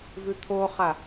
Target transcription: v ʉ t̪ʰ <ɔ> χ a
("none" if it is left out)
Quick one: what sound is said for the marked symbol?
o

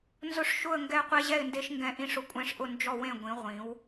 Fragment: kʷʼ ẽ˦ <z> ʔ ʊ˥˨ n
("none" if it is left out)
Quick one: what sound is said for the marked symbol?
ʂ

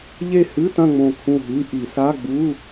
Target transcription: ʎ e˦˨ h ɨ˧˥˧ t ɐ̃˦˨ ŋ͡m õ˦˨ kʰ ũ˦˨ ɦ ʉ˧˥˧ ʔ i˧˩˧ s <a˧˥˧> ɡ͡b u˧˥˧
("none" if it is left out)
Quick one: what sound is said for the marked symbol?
a˧˥˧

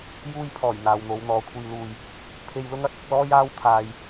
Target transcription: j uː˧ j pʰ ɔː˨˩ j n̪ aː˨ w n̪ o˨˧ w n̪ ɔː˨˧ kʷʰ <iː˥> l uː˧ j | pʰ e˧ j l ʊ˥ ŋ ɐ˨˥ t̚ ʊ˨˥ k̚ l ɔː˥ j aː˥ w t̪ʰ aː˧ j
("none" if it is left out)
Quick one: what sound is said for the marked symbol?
iː˧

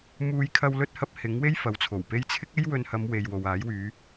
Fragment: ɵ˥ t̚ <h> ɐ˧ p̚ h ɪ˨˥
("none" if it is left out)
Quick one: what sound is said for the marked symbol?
h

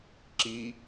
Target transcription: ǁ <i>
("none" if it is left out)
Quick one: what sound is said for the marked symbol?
i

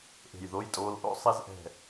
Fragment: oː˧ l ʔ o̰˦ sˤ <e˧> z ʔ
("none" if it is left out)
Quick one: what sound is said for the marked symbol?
e˧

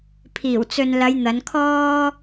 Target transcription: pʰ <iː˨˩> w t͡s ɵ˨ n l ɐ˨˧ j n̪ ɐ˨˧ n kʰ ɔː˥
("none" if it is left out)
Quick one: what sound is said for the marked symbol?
iː˨˩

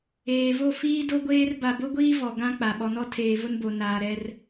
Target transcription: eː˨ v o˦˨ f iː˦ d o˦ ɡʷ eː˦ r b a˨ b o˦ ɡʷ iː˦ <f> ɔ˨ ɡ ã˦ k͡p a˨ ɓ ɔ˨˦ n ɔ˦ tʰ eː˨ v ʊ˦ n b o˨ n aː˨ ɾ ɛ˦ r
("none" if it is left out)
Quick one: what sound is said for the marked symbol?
v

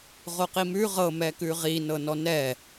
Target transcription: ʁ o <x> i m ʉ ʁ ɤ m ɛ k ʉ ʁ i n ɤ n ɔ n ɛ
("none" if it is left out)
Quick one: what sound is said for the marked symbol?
q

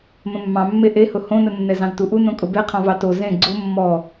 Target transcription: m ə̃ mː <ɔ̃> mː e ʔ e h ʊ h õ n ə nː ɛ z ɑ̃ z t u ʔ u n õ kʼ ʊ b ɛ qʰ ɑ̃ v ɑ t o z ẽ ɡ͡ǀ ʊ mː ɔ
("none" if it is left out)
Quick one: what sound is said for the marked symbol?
ɑ̃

